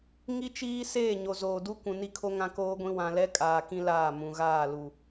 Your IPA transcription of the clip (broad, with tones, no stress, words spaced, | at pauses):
ŋi˦t͡ʃiː˦ seː˦˨ɲo˨zoː˨du˦ kʷũ˨ni˦kʰo˦ ŋã˦koː˦ɡʷĩ˦ wã˨lɛ˦ kʼaː˨kĩ˦ laː˦˨mũ˨ ɣaː˦˨lu˨